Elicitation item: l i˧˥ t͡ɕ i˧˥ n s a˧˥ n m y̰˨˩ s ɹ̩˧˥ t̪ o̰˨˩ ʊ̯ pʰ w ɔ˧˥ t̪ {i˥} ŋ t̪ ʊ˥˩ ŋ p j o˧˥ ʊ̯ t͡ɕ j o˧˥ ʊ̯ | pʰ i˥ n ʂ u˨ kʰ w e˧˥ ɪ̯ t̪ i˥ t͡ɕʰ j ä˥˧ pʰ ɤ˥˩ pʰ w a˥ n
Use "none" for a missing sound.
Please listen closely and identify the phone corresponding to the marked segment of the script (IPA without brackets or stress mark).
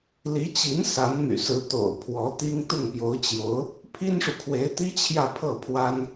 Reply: i˥